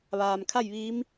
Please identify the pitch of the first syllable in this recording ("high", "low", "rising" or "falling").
low